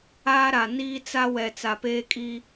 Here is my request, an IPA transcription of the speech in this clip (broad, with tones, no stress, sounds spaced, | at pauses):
aː˦ ɾ a˨ n iː˦ t͡s a˦ w ɛ˨ t͡s a˨ p eː˦ kʼ i˦